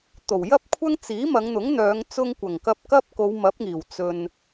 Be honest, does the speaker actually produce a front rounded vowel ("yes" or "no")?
yes